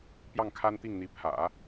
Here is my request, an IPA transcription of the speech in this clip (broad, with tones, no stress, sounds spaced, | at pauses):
p j ɑ˥˩ ŋ kʰ a˥ n t̪ i˥˩ ŋ n̪ i˧˥ pʰ ä̰˨˩˦